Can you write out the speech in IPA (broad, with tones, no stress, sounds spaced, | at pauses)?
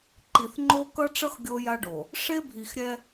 ǃ i˨ θ ŋ͡ǃ o˦ k ʌ˦ ʈ͡ʂ ʌ˦ x ɡʲ o˦ j a˦ ɖ o˨ | ʂ e˦ bʱ i˨ x ɾʲ ɛ˦